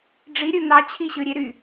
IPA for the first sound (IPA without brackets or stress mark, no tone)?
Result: ɖ͡ʐ